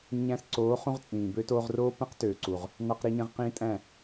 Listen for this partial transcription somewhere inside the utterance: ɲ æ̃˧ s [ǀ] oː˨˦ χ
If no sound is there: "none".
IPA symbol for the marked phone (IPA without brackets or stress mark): ǀ